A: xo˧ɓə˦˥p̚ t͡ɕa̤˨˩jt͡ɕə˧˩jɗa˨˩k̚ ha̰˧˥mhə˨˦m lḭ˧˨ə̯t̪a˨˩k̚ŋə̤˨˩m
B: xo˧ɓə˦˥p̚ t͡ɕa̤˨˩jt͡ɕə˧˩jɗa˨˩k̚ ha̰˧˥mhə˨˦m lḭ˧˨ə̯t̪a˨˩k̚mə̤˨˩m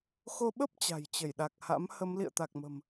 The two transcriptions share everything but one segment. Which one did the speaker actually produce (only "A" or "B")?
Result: B